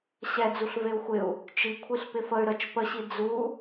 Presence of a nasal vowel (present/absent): absent